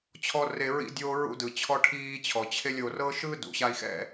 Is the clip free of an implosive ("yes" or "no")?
yes